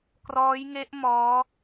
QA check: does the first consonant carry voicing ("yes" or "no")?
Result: no